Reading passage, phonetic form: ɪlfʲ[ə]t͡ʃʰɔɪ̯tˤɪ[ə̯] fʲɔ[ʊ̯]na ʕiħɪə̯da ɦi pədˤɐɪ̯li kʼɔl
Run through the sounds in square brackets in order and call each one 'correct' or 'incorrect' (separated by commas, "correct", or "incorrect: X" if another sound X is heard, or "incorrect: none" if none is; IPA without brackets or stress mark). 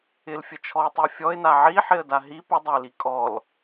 correct, correct, incorrect: ɪ̯